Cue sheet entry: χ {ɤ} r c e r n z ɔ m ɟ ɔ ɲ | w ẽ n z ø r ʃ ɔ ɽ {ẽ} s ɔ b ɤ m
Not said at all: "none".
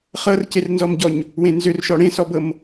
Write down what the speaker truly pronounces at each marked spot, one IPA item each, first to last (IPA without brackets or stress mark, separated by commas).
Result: ɤ, ẽ